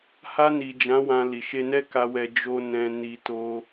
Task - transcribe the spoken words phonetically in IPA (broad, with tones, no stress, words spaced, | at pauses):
ha˧ni˨d͡ʒã˨˦ wã˧li˨ ʃe˧nɛ˦ka˧wɛ˧ d͡ʒo˧ nɛ̃˧ ni˧to˧